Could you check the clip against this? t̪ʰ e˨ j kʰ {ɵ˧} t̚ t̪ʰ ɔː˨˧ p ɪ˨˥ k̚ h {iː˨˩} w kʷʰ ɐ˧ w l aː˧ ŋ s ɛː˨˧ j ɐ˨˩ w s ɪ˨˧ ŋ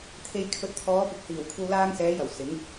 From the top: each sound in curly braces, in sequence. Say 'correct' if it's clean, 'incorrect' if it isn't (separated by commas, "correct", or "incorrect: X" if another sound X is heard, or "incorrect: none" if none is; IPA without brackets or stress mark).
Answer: incorrect: ɵ˨, correct